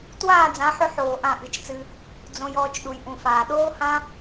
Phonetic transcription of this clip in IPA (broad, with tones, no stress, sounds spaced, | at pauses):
t w aː˦˨ d͡z ã˨˦ ħ ʏ˧ ħ oː˨ ʔ ã˦˨ ʔ ɨ˨˦ t͡ʃ t͡s ɨ˧ | d͡z õ˧ j ɔː˦˨ t͡ʃ ɗ u˨ j ʔ ũ˨ f aː˨ ɗ oː˦ h ã˦